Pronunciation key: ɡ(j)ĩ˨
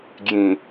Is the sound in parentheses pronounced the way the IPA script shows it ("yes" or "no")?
yes